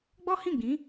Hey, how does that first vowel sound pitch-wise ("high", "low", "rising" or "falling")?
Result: high